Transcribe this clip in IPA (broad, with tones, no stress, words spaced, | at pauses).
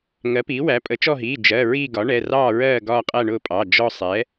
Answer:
ŋɜ˩˥piː˩˥wæ˩˥ pʼə˩˥t͡ʃɔ˦˨ɦiː˩˧˩ d͡ʒɜ˩˧˩ ɹiː˦˨ɡɒ˩˥ ɳɛ˩˧˩rɑː˦˨ɹɜː˦˨ ɡɒː˦˨qʼæ˦˨ɳʊː˦˨ pʼɑ˩˧˩ d͡ʒɔ˦˨ sˤɛ˩˥